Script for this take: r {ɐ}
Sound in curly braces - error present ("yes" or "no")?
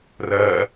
no